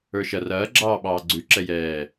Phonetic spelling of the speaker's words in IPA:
ə˞ ʃ ɐ r ɐː ɡ͡ǁ ɑː ɓ ɑː ɡ͡ǀ ʉ ǁ ɛ j ɛː

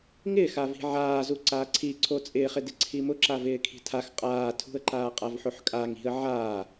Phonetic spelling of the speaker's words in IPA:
ŋ ɪː x a v i̤ ʕ aː z u ǀ aː ǀʰ i ǀʰ o t͡sʼ ɪː χ ɪ d ɪ ǀʰ i m ʊ ǁ a v ɪː kʰ i̤ tʰ a x qʼ aː tʰ ṳ ə̯ ǃ aː qʼ a v ħ o ħ kʼ a ŋ i̤ ə̯ ʕ aː

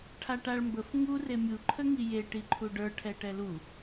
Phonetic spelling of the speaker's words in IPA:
ʈʰ a ʈ a ɭ m b ə f ŋ u r e mʲ u ǃʰ ə ŋ i j e ʈ i ǃʰ u ɖ ə˞ ʈʰ ɛ ʈ ɛ l u

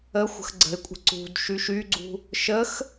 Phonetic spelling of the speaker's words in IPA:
ə xʷ ə̤ x ɡ͡ǀ ə̤ ɪ̯ kʷʼ ə̤ ǀ ṳ d ʃ y ʃ y ɡ͡ǀ ṳ | ʃ ə x

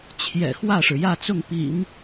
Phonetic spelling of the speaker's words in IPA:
t͡ɕʰ j ɛ̰˨˩ x w ä˥˩ ʂ ɻ̩˩ j ä˥˧ t͡s ʊ˥˩ ŋ p ḭ˨˩˦ ŋ

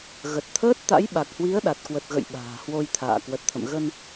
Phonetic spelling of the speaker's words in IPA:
ɣ ə˨˩ t̚ t̪ʰ əː˦˥ t̚ t̪ a̰˧˥ j ɓ a˨˩ k̚ h w i˨˦ ə̯ ɗ a˨˩ t̚ k w ə˨˩ t̚ ɣ ə̰˧˨ j ɓ a̤ː˨˩ h w o˧ j t̪ʰ a̰ː˧˨ k w ə˨˩ t̚ t̪ʰ ə̰˧˨ m ɣ ə˧ n

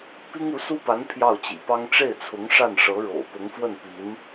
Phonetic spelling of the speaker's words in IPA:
p i˥ ŋ u˧˥ s u˥ p a˧˥ n pʰ j ɑ˥˩ ʊ̯ t͡ɕ ḭ˨˩ p ɑ˥ ŋ ʈ͡ʂ e˥˩ ɪ̯ t͡sʰ ʊ˧˥ ŋ ʂ a˥˩ n ʂ ɤ˧˥ ɻ o̰˨˩ ʊ̯ p ʊ˧˥ ŋ f w ə˥˩ n p i˧˥ n

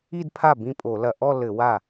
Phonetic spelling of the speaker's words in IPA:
i˥˧ d pʰ a˥˩ b ĩ˥˩ pʼ o˧˩˧ l ɐ˧˩˧ ʔ ɔ˥˧ l ɘ˧˩˧ w a˥˩

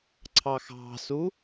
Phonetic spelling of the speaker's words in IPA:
ǀʰ ɑ x ɑ̤ s u

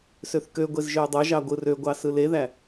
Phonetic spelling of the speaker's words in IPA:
s ø θ k ø ɡʷ e z ʒ ø y̯ dˤ o ʒ ɑ ɡʷ ɯ r ø ɡʷ ɑ s ɯ l e ð æ

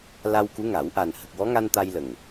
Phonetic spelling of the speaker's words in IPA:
l a˧ w k u˧˥ ŋ a˨˩˦ w ʔ a˨˩ n h ə˨˩ k̚ w ɔ˧˥ ŋ a˧ n t̪ a˧ j l ə˨˩ ŋ

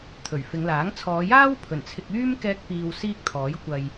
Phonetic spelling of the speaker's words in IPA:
t̪ʰ ɵ˨˩ ɥ f ɪ˨˧ ŋ l aː˨˥ ŋ t͡sʰ ɔː˨˧ j aː˥ w pʰ ɵ˨˩ n t͡sʰ ɪ˧ k̚ yː˥ m k ɛː˥ k̚ p iː˧ w s iː˥ k̚ t̪ʰ ɔː˨˥ j kʷ ɐ˨ j

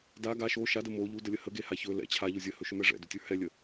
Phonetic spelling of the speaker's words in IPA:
d a ɡ a ʃ o ʃ a d ə m o ʎ u d ə lʲ ə h ə ɡ e h a ç ɵ l ɛ̰ t͡ɕʰ a ʎ o zʲ ə h ɵ ʃ ɵ m ɛ ʐ ɛ̰ d ʏ tʲ ə˞ h ɛ lʲ ə

